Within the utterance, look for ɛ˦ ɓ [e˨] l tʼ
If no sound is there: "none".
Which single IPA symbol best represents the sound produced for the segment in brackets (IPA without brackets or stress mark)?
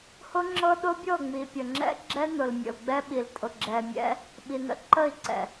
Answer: i˨